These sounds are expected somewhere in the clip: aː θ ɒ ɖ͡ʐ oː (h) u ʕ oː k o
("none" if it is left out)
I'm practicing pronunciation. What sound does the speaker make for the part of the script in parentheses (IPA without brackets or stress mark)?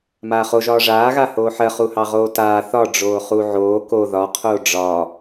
χ